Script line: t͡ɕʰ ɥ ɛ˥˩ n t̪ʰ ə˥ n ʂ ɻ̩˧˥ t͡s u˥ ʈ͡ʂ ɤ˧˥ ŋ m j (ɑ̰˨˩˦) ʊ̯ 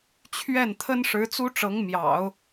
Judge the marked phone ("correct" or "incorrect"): correct